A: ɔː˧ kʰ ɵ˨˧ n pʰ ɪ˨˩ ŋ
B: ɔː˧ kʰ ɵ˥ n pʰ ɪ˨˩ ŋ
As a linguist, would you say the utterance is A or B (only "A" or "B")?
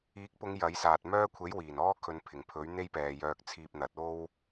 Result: A